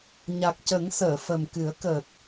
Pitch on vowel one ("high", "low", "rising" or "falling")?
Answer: low